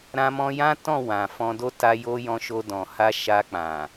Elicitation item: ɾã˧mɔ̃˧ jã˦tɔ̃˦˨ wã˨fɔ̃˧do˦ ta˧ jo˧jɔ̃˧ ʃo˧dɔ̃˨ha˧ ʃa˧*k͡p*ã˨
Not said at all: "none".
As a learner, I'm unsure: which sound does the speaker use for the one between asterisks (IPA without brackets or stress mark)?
k͡p